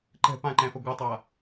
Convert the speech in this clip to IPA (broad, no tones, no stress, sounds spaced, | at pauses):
ǃ ɛ̤ p ã ǃ ɛ̃ f ɐ ɡʷ ɨ tˤ a